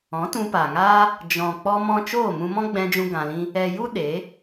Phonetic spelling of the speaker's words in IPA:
ɔ̃˨˦ t ũ˧ p aː˨ ŋ aː˦ | d͡ʒ ɔ̃˨ k͡p ɔ˧ m ɔ̃˧ t͡ʃ oː˦˨ m ũ˧ m ɔ̃˦ ɡ͡b ɛ̃˧ d͡ʒ ũ˧ ɡ ã˧ l ĩ˦ | ɛ˨ j u˦ ɗ e˨˦

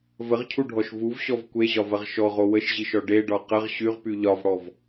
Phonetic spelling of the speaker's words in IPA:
v ə ʁ cʰ u ɖʱ ɔ ʃ v u v ɕ ɔ v kʷ e ʑ ɒ v ɐ ʁ ʃ ɔ ʁ o w ə ʃ ʑ i ʃ ɔ ɖ e ɖ ɒ q ə ʁ ɕ y ʁ p y ʎ ɒ v ɽ ɔ v

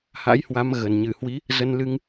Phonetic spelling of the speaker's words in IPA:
h a̰˧˥ j h w a˨˦ m ɣ ə˨˩ n ɲ ɨ˧˩ h w i˨˦ | z ə˧ n l ɨ˧ ŋ

